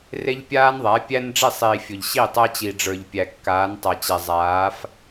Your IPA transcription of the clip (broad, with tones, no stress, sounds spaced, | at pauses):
r e˦ ʎ pʲ aː˦ n ðˤ æ˨˦ pʲ æ˦ n ɖ͡ʐ i˦˨ sˤ iː˨ fʲ ʊ˨ ʎ ɕ i˦˨ tˤ æ˦ t͡ɕ i˨ ɖ͡ʐ ə˞˨ ʎ pʲ æ˨ kː aː˨˦ n tˤ a˨ t͡ɕ ɛ˨ zˤ aː˨˦ f